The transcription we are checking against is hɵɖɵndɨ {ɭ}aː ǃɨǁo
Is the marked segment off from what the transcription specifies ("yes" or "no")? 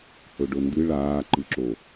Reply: no